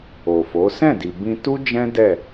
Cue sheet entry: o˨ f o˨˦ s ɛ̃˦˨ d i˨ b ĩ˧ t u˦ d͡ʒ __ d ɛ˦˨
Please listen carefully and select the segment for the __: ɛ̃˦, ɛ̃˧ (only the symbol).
ɛ̃˦